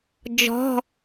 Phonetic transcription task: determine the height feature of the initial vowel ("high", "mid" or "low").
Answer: mid